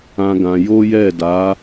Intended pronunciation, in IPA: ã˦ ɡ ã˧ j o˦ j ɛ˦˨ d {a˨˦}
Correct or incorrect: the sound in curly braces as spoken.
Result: correct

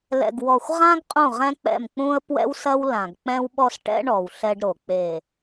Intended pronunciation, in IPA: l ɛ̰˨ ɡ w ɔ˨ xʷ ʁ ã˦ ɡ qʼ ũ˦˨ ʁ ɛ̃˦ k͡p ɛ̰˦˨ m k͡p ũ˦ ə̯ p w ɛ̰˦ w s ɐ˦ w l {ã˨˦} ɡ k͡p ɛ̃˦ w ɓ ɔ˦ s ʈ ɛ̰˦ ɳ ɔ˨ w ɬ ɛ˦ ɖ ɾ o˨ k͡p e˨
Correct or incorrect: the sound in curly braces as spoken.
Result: incorrect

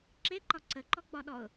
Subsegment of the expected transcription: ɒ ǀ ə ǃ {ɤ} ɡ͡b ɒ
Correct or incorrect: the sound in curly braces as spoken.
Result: incorrect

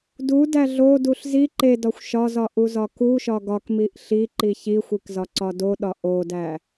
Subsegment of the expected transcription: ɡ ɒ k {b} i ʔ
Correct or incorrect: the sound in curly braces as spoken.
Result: incorrect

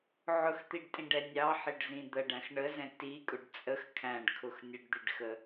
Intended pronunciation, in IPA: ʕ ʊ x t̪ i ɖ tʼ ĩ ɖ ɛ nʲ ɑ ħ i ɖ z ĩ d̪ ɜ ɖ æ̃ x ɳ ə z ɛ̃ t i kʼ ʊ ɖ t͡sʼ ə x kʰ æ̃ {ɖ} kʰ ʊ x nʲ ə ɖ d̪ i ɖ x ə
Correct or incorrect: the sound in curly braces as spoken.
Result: correct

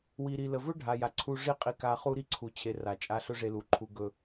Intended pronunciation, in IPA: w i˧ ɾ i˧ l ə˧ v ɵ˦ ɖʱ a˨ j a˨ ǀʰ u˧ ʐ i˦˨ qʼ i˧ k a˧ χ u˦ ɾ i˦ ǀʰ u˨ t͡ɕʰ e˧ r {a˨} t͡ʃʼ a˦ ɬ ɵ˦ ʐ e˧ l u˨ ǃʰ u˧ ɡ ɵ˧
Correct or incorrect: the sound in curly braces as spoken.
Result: correct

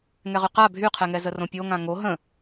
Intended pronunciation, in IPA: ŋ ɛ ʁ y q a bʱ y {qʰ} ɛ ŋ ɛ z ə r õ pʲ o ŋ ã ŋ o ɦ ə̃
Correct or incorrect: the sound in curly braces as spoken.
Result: correct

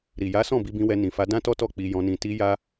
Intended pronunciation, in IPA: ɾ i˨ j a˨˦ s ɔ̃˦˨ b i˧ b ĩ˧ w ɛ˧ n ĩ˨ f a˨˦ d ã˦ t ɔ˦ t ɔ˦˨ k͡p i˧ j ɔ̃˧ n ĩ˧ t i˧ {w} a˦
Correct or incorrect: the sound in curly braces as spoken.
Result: incorrect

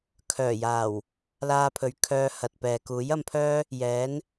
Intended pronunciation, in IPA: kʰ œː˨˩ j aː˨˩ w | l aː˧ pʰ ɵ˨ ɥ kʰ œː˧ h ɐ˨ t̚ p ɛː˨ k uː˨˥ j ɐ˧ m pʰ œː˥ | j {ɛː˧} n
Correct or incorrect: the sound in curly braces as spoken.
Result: incorrect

